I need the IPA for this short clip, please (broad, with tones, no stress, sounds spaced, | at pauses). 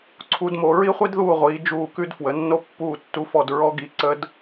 ǀʰ u˧˥ d m o˦˨ ɹ i˥ χʷ i˥ d ð uː˦˨ ʁʷ iː˩˧ d͡ʒ uː˦˨ k ʉ˥ d f w ə˩˧ nː o˥ pː uː˦˨ tː u˦˨ f ɔ˦˨ d ɹ ɔ˧˥ ɡ i˩˥ ǀ ə˧˥ d